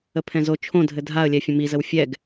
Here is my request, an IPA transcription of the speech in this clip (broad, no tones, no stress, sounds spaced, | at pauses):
ə pʰ ɛ̃ z o t͡ʃʰ õ dʱ ɘ dʱ a ə̯ lʲ ɛ fʲ ə̃ m i z ə w fʲ ɛ ɡ